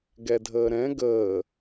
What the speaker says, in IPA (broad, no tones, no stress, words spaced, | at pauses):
ɡɛdʱəːɾɛ̃ ɡəː